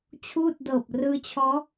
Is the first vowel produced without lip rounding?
no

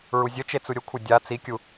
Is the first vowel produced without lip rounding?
no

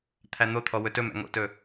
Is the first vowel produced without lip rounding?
yes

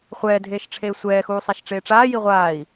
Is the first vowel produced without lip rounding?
yes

